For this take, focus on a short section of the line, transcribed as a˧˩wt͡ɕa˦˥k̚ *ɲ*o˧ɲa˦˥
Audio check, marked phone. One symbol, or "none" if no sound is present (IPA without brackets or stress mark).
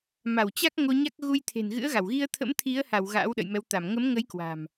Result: ŋ